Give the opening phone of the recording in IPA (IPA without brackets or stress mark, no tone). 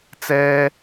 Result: t͡s